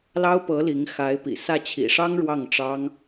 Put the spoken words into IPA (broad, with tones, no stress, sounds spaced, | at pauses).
l ɑ˥ ʊ̯ p ɤ˧˥ l i˧˥ ŋ x a˧˥ ɪ̯ p ḭ˨˩ s ä˥˩ t͡ɕʰ ḭ˨˩ ʂ ɑ˥ ŋ ɻ w ɑ˥˩ ŋ ʈ͡ʂ ɑ˥ ŋ